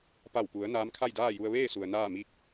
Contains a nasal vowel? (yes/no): no